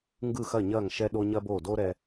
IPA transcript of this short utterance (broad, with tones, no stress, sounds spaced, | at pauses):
ŋ ɡ ɯ˥˩ x ɐ˥˩ ɲ ɐː˥˩ ŋ ʃ ɛ˥ ɗ o˥ ɲ ɐ˥ b oː˥˩ d oː˥ ɾ ɛ˧